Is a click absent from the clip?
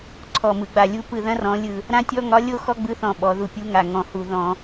no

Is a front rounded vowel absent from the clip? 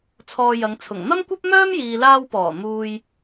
no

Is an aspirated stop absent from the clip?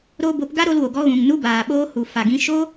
yes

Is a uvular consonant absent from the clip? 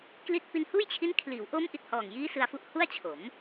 yes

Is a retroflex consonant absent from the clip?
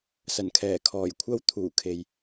yes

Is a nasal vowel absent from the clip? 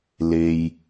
yes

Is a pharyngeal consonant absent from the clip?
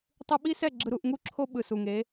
yes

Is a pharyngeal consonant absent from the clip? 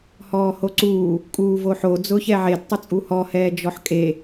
no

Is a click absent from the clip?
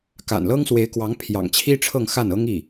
yes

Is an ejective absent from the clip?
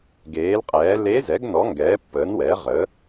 no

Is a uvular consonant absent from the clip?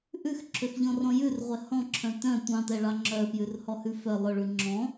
no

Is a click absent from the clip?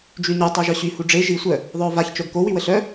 yes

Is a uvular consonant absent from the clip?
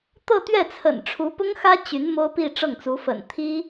yes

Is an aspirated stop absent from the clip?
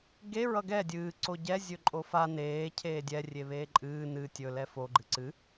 no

